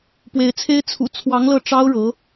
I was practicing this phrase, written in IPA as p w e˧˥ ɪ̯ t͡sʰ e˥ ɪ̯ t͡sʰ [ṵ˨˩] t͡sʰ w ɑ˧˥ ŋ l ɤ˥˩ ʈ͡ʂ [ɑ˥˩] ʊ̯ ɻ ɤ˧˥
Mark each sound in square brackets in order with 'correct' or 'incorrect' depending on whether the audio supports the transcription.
correct, incorrect: ɑ˥

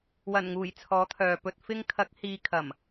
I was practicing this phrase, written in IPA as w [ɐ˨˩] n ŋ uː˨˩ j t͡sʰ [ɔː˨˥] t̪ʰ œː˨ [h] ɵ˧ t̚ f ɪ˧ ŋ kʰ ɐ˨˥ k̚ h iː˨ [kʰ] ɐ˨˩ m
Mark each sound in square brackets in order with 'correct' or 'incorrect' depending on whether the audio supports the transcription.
correct, correct, incorrect: p, correct

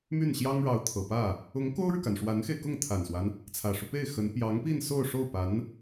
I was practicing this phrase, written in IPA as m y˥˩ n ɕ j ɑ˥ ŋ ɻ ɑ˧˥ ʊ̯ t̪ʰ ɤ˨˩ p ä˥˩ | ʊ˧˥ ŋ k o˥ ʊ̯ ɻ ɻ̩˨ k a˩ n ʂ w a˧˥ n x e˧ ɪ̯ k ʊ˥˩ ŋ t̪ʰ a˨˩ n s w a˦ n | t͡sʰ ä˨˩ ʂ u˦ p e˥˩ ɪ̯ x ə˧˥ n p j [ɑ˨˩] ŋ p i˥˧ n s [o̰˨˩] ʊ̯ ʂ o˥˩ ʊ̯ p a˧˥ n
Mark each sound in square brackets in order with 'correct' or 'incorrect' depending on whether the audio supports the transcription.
incorrect: ɑ˧˥, incorrect: o˥˧

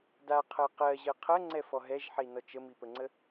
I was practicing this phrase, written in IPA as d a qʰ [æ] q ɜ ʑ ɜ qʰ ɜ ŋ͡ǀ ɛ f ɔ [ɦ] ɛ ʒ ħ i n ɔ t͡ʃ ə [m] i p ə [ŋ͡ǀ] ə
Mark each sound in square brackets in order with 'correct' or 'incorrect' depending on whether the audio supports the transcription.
incorrect: ɜ, correct, correct, correct

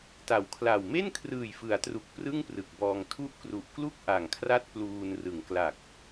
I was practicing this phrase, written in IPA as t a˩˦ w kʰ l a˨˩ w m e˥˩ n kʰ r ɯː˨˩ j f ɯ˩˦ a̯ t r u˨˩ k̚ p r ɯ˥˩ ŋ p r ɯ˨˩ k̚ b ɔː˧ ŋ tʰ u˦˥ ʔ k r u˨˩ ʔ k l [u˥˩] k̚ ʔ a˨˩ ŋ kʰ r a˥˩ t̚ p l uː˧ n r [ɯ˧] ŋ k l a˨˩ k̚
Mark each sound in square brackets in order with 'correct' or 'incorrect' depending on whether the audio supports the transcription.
correct, incorrect: ɯ˩˦

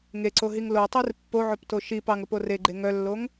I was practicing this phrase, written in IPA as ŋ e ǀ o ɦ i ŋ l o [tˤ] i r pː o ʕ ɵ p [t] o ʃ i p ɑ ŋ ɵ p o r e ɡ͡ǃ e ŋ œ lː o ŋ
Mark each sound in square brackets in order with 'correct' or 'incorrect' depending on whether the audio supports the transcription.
correct, correct

